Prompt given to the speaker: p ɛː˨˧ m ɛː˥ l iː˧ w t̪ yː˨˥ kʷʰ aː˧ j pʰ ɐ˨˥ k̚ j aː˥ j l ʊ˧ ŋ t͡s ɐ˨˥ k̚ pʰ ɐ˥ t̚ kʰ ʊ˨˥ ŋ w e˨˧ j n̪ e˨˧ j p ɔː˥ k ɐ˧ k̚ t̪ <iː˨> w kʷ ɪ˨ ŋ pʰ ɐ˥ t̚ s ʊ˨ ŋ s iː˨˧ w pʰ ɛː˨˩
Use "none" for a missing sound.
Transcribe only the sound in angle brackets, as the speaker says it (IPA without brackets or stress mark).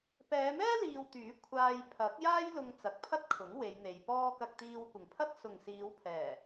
iː˧